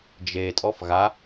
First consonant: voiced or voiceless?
voiced